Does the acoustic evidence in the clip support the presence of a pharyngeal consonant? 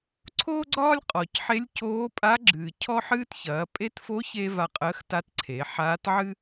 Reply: yes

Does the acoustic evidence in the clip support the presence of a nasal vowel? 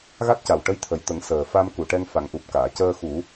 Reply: no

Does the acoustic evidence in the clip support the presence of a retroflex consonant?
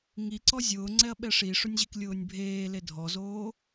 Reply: yes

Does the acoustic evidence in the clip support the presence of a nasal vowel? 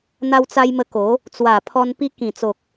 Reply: yes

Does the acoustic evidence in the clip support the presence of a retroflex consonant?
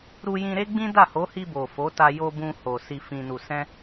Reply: no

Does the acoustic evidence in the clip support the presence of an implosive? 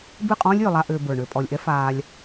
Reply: no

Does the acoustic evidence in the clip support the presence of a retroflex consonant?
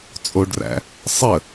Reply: yes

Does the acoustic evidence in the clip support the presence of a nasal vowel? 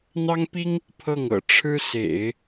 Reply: no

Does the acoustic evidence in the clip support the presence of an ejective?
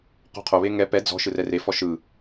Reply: no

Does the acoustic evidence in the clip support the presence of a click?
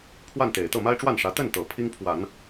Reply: no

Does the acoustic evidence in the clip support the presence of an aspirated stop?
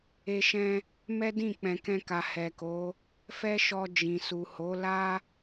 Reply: no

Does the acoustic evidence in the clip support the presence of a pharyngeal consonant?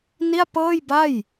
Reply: no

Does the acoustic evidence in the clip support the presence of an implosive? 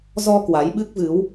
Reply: yes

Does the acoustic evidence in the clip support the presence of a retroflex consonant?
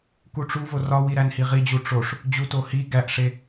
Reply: yes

